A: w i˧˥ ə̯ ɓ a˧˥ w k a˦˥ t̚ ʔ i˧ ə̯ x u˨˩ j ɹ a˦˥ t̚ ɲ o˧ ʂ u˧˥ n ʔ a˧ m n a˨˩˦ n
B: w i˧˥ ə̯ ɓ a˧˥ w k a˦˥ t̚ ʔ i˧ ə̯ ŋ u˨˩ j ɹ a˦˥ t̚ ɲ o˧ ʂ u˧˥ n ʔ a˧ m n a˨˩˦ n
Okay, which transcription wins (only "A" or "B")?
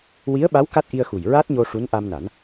A